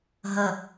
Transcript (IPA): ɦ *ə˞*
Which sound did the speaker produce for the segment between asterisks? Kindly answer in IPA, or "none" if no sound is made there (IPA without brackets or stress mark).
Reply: ə